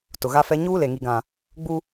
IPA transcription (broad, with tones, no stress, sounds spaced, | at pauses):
t ʊ˨ ɣ a˦ f ɛ˦ ɲ uː˦ l e˨ ŋ i˨ ɡ ã˨ | ɡ͡b u˦